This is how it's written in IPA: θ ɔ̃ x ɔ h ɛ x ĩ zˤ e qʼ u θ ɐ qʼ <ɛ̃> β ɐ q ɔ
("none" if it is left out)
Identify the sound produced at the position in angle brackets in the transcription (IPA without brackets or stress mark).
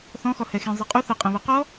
ɛ̃